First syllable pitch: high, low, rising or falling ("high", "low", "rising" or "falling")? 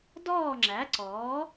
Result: falling